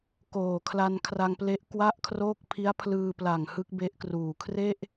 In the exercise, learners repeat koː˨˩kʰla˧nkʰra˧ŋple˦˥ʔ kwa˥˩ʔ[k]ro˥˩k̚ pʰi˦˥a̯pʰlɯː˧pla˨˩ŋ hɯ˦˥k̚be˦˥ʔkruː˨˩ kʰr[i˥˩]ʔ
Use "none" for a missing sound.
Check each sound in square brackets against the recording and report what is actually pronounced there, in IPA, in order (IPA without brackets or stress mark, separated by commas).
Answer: kʰ, e˥˩